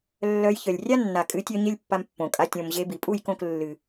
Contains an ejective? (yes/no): yes